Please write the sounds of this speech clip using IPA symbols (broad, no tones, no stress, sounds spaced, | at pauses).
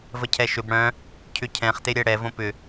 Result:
v ə cʰ ɛ ʃ ʏ b ɽ œ̃ | cʰ ʏ cʰ ɛ̃ χ t e ɾʲ ɛ ɽ ɛ v õ p ʏ